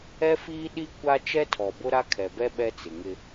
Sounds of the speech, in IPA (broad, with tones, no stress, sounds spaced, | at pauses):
ɛ˦ f iː˦ ɗ i˦ kʷ a˦ t͡ʃ ɛ˦ tʰ ɔ˨ b ʊ˦ ɾ a˦ kʰ ɛ˨ b ɛ˦ ɓ ɛ˦ t͡s ɪ˨ ŋ ɪ˦